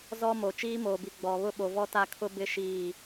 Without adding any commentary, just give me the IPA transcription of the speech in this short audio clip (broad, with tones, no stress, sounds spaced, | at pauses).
z ɔ˦ m o˨ t͡ʃ iː˦ m oː˨ b i˨ ɡ͡b ɔ˨ β ʊ˦ ɓ o˨ v ɔ˦ t a˦ kʰ ʊ˦ b ɪ˦ ʃ iː˦˨